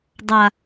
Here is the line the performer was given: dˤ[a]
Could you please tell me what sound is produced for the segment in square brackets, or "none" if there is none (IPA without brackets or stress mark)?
a